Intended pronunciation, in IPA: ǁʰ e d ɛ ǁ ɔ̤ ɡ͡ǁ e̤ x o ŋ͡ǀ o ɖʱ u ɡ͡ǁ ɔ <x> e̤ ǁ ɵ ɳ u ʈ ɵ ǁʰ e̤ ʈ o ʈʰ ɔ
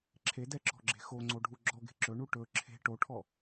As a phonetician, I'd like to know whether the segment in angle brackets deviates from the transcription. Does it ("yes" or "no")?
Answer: yes